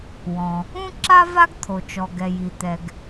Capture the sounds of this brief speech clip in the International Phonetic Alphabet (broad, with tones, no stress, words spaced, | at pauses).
wɔ̃˩ | ũ˥ǁa˥ va˥ɡt̪ʰo˩t͡ʃɔ˩ɡɛ˩ ji˩ t̪ɛ˩ɡ